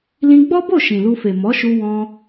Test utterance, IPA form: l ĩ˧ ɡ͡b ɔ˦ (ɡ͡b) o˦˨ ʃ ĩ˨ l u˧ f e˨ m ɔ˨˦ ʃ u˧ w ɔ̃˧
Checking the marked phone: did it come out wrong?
yes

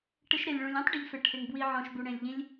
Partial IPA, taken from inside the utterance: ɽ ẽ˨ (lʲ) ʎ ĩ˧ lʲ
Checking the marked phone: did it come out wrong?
no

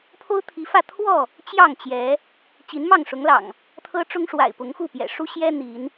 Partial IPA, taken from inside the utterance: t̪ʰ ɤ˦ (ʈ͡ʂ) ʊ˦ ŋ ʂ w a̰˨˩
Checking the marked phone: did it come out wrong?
no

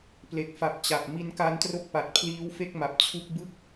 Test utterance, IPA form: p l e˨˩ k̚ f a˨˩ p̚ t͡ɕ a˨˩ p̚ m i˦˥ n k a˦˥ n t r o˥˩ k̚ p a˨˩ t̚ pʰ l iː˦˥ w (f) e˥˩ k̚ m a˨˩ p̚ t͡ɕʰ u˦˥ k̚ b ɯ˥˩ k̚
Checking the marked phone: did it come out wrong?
no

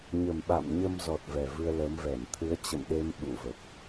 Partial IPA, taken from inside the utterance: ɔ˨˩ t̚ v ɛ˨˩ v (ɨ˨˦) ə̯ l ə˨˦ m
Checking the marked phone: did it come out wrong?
yes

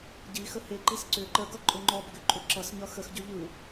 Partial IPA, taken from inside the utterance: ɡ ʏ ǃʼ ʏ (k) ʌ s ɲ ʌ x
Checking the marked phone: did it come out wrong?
yes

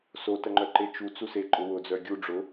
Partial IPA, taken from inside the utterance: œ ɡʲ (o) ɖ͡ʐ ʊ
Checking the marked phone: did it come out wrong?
yes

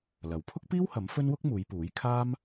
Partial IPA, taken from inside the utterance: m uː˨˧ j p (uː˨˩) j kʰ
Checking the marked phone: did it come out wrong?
yes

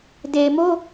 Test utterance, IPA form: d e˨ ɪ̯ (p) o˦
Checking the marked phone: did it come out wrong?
yes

